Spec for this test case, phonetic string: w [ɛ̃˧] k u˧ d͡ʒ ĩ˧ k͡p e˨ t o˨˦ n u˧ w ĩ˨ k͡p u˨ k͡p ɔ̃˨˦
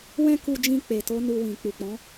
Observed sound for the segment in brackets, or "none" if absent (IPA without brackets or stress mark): ɛ̃˧